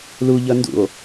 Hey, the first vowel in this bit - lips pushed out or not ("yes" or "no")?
yes